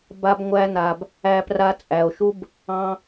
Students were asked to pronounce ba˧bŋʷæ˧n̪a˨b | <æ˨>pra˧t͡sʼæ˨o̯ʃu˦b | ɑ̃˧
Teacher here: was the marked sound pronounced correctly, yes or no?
no